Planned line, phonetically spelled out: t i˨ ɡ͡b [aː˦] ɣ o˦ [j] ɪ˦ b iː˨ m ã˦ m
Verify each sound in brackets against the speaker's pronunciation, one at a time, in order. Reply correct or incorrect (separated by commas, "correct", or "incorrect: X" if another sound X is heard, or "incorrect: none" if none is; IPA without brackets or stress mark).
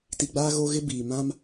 correct, incorrect: ɣ